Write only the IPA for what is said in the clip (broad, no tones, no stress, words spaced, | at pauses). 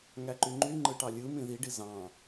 ŋæǃyŋ͡ǃy ŋ͡ǃɯʈɑlʲɯ mĩðiɖi zɑ̃